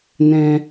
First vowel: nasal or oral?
nasal